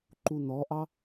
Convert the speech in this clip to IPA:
ǃunɔʔɑ

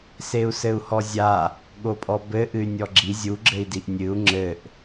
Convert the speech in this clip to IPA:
seu̯sɘu̯hɔzʲa | ɠopʼɔbɘ ʔɨy̯nʲɔɡ͡ǁi zʲuɡ͡ǁɘi̯diʔ nʲɨu̯ ŋ͡ǁɘʔ

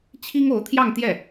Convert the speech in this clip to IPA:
t͡ɕʰi˥ŋo˧˥ʊ̯t̪ʰjɑ˥˧ŋ t̪jɛ˥˩

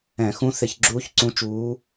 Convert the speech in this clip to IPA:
ɛ̃˧˩˧xũ˧˥ θɪ˧˩˧ç ɡ͡ǁuː˧˥çǀũ˧˥t͡ʃuː˧˥

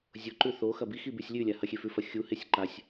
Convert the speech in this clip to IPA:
zʲoǃʉ θoxɐ bixi bʉsʲlʲʉlʲa hɐxʲefʉfɐ xʲuhesʲ ǃasʲ

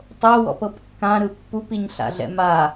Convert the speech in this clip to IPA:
tˤowɔ̰p ɤpkːãɾɯ pːupiɲ ɬa̰ɮɛ̰ma

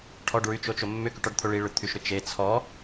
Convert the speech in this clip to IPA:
ʈʰɔɖɹyt͡ʃot͡ʃo mːʏkyʈɔɖt̪ʰo ɭiɭʏt̪ʰyʃɾʏ t͡ʃe t͡sʰɔ

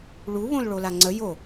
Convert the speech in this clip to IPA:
ɭu βõlɭolaŋ͡ǀə jo

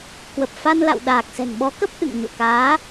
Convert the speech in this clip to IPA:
kwə˨˩p̚fa˧nla̰˧˨w ɗaː˨˩k̚sɛ̤˨˩n ɓɔ˨˦kə˦˥p̚ʔɨ̰˧˨ŋ ɲo̰˧˨kaː˨˦

